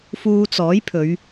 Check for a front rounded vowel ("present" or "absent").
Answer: absent